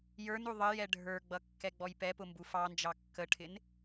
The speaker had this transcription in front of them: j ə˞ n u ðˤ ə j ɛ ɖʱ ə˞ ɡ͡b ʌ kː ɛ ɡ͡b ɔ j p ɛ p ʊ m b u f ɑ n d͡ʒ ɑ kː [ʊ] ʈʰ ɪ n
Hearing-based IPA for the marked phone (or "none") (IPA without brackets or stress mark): ə